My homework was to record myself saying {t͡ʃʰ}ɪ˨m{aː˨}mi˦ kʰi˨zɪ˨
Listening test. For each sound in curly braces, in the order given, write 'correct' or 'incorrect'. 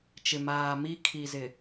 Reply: incorrect, correct

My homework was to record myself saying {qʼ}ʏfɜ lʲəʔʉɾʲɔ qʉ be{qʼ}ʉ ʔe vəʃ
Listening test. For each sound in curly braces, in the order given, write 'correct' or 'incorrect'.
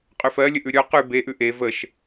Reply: correct, incorrect

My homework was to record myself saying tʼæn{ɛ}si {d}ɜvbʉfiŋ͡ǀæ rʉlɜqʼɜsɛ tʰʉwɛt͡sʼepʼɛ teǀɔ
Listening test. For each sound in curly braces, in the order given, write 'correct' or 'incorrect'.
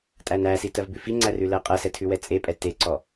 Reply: incorrect, incorrect

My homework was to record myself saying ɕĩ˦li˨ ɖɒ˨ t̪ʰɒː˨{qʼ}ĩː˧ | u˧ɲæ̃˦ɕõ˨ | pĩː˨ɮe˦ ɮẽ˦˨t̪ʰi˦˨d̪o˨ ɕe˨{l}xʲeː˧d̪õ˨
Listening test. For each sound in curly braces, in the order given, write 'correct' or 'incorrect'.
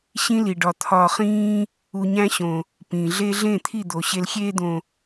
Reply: incorrect, correct

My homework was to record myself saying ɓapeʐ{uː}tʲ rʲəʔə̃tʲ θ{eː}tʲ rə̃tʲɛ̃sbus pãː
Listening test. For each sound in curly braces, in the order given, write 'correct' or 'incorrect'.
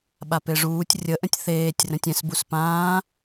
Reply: correct, correct

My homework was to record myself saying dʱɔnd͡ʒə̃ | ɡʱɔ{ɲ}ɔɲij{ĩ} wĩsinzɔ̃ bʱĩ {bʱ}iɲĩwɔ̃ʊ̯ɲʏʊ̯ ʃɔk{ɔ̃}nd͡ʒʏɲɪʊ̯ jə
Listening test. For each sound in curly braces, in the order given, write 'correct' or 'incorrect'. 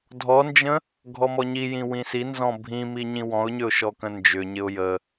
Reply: incorrect, correct, incorrect, incorrect

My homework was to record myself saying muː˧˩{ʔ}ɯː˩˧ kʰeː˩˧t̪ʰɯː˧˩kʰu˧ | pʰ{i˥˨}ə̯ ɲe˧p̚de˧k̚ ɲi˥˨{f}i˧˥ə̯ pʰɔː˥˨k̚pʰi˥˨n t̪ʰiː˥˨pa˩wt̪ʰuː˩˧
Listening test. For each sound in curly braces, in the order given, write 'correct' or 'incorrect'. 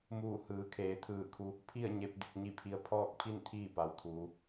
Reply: incorrect, correct, incorrect

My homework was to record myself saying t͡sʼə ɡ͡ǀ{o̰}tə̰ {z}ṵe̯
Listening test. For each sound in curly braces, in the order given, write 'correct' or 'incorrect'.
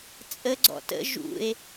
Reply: incorrect, incorrect

